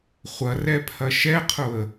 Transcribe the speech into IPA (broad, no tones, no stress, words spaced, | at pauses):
χʷɐrɛpʰɐ ʃɛqʰʊə̯